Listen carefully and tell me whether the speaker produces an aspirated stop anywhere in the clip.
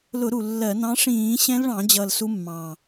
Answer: no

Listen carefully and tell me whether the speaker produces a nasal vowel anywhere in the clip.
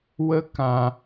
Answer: yes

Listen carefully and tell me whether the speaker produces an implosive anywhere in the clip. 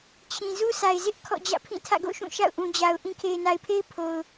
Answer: no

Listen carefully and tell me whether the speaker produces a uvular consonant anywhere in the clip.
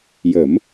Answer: no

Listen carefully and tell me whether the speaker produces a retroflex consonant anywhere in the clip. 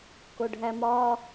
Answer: yes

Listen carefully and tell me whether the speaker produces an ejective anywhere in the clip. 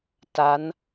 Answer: no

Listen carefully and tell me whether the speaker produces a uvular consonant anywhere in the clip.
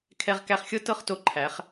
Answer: yes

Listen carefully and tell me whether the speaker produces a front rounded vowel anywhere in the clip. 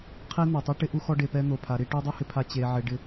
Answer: no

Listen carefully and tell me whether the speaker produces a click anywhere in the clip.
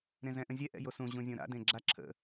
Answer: yes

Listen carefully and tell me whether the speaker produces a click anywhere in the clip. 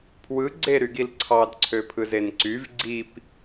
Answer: yes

